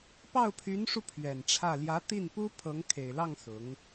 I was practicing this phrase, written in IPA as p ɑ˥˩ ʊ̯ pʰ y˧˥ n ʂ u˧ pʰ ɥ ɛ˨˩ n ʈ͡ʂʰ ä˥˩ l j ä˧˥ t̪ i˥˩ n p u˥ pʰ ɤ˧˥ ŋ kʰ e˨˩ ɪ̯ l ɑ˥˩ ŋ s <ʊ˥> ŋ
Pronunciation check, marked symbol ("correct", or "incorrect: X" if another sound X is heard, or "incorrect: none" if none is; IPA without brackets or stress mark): incorrect: ʊ˧˥